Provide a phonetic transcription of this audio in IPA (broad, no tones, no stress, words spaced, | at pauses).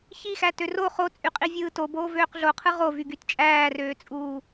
çixætø ro χot͡sʼyqʼivʲɯː toboːvøːq ɮoqʰɯ ʁovyɡyt t͡ʃʼæːrøːt͡sʼuː